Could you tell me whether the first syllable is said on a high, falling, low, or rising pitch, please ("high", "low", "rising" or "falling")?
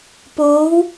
rising